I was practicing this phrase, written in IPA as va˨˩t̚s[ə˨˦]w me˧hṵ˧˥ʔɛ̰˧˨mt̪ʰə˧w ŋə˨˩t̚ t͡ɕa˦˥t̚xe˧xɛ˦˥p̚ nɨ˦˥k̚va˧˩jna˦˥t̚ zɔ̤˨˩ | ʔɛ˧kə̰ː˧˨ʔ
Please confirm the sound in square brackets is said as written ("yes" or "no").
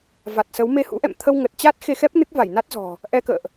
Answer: yes